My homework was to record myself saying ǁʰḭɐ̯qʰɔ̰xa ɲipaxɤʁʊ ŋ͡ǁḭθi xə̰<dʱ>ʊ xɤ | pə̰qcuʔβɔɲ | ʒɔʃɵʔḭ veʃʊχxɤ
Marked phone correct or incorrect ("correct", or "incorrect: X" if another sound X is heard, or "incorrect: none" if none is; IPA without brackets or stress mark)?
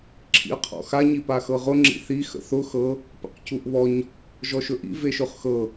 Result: incorrect: θ